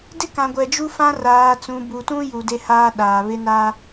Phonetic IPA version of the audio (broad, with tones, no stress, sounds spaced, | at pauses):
d ɪ˦ k ã˨ ɡʷ ɛ˨ d͡ʒ u˦ f ã˦ r aː˨ t͡s ũ˨ b u˨ t ũ˦ j u˨ d e˦ h aː˦ ɗ aː˨ β ɪ˦ n a˦